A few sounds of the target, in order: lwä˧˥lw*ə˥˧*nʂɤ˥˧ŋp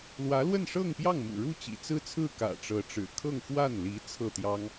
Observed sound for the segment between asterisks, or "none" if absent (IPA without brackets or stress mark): ə˥˧